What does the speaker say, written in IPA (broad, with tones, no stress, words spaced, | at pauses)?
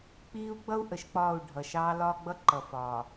k͡piː˦u̯ɡ͡bʌ˦u̯ ʔə˨ʃk͡pɒː˦˨u̯ ɖʱʌ˨ʃɑː˦lɒː˦ ɡ͡bʌ˦ǃʌ˨ fɒː˨